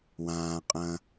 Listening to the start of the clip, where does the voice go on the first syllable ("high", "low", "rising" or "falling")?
low